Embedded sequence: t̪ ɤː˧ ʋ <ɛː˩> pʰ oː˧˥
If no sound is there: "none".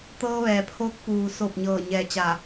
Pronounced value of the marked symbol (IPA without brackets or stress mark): ɛː˩